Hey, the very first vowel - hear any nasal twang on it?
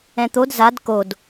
yes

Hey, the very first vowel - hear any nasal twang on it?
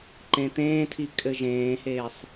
yes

